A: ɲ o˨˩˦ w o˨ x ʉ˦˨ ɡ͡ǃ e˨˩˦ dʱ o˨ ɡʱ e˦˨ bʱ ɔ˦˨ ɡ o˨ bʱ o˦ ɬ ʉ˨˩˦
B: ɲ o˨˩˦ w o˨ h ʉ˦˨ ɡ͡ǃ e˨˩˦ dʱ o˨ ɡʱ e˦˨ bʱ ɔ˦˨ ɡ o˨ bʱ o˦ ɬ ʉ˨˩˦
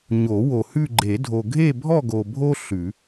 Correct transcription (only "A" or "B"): B